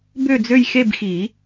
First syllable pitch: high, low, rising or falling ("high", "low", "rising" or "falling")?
falling